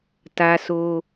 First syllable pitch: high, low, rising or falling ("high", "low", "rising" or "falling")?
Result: high